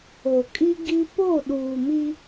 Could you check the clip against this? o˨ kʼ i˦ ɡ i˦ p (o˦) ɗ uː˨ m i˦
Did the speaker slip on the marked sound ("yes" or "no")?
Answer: yes